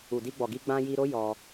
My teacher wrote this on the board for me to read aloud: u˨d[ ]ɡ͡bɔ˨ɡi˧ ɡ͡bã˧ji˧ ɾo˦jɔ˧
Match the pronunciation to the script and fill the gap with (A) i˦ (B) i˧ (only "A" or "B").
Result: B